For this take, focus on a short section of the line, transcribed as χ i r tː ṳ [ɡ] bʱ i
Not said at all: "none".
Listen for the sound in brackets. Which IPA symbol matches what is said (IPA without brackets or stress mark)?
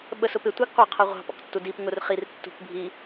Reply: k